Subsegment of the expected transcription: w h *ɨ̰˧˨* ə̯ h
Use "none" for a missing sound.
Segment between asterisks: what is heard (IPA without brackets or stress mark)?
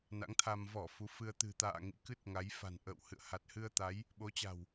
ɨ̰˧˨